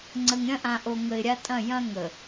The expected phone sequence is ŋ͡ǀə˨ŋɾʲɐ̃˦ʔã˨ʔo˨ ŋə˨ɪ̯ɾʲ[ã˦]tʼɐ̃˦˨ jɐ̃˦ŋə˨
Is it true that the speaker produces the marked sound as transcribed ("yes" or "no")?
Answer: no